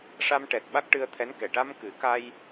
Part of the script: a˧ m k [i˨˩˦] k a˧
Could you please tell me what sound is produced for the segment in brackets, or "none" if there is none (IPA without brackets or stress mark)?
ɨ˨˩˦